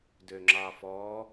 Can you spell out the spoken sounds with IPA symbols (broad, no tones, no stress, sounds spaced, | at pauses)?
d ø ŋ͡ǁ ɑ f ɔ